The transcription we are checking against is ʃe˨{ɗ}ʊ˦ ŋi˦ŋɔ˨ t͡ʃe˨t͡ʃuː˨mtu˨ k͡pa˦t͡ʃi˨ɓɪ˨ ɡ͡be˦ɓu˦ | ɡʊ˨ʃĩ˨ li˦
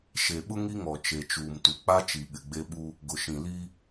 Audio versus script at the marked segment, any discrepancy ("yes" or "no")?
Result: yes